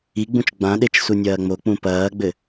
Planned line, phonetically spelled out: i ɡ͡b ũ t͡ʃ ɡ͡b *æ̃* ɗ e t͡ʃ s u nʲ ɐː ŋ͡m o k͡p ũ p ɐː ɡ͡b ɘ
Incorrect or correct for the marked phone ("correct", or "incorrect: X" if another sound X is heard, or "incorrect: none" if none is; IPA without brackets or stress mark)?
incorrect: ã